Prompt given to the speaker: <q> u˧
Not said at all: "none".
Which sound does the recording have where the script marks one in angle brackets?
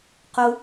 q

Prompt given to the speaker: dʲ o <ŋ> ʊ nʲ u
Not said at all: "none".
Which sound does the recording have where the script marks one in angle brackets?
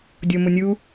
m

